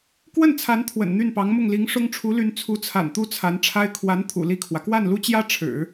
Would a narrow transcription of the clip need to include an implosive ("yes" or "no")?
no